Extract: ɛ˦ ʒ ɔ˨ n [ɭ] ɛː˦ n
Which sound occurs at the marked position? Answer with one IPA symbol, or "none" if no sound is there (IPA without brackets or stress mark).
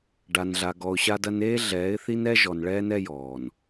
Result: ɭ